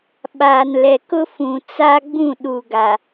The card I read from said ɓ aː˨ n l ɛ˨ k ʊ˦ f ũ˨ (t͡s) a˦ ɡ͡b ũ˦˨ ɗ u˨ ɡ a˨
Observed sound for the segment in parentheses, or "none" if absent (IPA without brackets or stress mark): t͡s